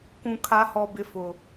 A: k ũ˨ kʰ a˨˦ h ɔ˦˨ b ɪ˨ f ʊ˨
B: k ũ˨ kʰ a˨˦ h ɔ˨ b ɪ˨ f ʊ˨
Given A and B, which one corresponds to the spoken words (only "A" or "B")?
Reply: B